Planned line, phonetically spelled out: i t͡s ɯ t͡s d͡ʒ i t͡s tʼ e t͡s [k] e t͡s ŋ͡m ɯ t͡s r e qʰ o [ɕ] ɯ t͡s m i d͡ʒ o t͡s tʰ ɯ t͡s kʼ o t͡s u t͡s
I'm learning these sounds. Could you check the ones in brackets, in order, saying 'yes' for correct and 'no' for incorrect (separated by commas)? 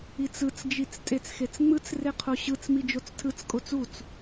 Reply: no, yes